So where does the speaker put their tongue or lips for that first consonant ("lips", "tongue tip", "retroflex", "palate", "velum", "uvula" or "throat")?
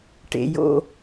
retroflex